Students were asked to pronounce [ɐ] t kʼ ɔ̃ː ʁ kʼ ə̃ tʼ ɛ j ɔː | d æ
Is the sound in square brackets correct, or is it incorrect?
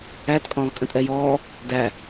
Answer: incorrect